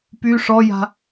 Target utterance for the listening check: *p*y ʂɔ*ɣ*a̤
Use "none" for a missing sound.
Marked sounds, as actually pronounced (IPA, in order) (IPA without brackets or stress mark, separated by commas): p, j